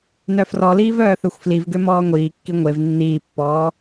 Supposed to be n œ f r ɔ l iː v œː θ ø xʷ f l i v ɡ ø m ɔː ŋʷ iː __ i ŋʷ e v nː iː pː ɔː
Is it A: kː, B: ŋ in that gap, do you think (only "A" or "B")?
A